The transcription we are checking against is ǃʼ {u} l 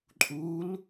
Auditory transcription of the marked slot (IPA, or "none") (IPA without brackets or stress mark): u